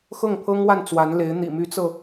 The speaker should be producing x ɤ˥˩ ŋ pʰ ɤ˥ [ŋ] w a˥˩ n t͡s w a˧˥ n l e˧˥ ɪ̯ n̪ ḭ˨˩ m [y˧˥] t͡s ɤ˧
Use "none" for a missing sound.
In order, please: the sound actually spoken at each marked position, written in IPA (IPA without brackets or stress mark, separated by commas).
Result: ŋ, y˧˥